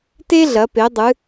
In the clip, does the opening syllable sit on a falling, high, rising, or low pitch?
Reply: high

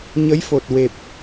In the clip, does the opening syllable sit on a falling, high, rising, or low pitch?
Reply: rising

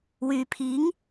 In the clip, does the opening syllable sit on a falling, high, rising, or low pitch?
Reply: low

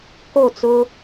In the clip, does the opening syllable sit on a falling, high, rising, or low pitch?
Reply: falling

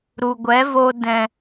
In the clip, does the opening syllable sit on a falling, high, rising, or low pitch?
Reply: low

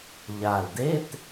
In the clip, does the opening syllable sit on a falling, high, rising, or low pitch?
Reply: low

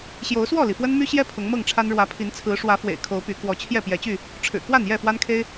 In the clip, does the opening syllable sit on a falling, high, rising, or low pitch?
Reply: rising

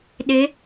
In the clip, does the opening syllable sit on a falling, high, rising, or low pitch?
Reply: rising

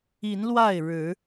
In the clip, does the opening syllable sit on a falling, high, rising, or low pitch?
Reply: rising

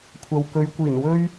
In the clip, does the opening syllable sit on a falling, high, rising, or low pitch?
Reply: low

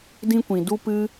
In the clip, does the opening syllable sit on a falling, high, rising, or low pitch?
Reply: high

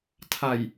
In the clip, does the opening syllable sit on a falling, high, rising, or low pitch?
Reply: low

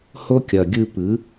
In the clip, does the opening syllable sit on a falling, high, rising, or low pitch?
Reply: high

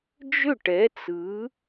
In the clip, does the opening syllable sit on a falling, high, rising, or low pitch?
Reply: falling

